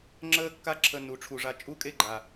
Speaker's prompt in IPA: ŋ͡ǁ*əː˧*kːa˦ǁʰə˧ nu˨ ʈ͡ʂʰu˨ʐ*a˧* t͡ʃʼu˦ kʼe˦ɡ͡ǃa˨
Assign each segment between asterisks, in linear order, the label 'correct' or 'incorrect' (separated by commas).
incorrect, correct